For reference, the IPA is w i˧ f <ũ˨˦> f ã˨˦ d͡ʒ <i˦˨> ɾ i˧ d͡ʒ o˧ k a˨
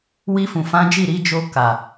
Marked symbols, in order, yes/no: no, yes

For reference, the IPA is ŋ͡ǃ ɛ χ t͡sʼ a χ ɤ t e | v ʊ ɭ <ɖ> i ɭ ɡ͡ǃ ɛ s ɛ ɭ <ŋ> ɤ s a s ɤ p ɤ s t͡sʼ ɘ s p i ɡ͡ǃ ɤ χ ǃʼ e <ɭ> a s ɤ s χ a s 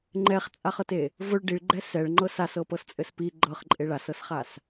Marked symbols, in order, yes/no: yes, no, yes

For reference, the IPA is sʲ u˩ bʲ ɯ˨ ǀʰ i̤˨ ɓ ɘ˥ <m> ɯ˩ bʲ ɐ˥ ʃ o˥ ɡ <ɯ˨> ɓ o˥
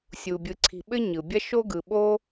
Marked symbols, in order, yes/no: no, yes

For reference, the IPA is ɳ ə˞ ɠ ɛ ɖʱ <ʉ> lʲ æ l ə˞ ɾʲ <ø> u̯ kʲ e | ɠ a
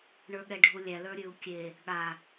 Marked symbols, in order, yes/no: no, no

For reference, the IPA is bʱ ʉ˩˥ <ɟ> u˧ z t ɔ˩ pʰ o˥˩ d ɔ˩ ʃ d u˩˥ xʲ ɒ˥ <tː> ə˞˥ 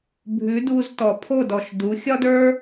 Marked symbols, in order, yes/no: no, no

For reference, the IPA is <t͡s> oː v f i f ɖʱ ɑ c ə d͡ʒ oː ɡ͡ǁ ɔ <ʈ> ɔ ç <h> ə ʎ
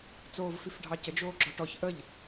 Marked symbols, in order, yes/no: yes, yes, no

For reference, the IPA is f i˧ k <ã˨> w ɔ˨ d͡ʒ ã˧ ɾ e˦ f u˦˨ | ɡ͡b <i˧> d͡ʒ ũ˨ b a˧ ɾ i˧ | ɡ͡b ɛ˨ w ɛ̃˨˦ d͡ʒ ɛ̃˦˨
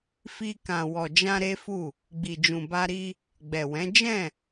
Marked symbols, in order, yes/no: yes, no

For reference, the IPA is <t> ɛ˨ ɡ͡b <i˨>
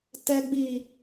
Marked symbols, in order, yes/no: yes, yes

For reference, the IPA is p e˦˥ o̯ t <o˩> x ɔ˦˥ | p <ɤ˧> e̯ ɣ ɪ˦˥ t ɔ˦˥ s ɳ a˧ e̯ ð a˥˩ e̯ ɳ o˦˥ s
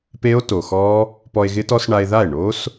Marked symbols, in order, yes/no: yes, no

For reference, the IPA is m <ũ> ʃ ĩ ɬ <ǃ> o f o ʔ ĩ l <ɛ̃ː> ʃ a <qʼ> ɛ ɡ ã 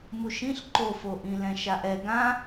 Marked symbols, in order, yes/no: no, yes, no, no

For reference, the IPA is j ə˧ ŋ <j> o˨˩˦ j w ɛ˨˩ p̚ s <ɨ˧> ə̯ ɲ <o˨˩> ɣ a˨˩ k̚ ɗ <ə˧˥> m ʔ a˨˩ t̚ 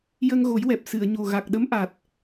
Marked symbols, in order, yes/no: no, no, yes, yes

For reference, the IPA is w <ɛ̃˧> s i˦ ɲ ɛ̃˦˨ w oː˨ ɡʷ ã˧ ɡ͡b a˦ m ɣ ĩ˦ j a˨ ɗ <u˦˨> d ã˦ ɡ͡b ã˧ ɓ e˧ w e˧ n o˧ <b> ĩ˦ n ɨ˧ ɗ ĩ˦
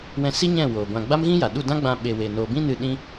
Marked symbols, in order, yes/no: yes, yes, yes

